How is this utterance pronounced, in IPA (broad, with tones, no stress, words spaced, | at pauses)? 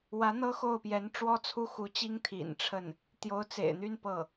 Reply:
wä˧˥n̪ɤ˥ xo˥˩ʊ̯pjɛ˧˥n ʈ͡ʂwɔ˥t͡sʰu˥˩xu˧˥t͡ɕi˥ŋ t̪ʰḭ˨˩nʈ͡ʂʰə˥˩n | t̪jo˧˥ʊ̯t͡sḛ˨˩ɪ̯n̪y˥˧n pɤ˥˩